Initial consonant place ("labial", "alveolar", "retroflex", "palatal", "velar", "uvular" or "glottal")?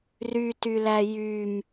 alveolar